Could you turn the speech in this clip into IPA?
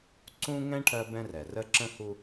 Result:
ǀũ˦ ŋɛ̃˦ ʈʰɜ˦bɛ̃˦rɛ˨ rə˦ǁə̃˦hu˦

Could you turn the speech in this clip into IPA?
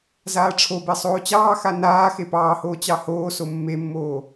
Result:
zaːʈ͡ʂʰobe sˤoːt͡ɕɑːxa naː xepɑːhoː t͡ɕɑhoːso mːemːoː

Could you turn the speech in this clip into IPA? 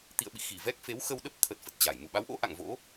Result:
t̪ḭ˧˨ə̯ɓḭ˧˨xi˧˩ vɛ˦˥k̚fe˨˦wxə˧w ɗə˦˥p̚t̪ʰə˨˩t̚ fə˨˩t̚t͡ɕa˧˩j mu˧˩ɓa˨˦wʔo̰˧˥ ʔa̰˧˨ŋvo̰˧˥

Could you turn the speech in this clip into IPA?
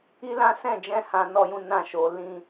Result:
i˦lã˦ sɛ̃˦˨d͡ʒɛ̃˧ hã˦nɔ˦jũ˦ nã˦˨ ʃo˨˦ lĩ˦

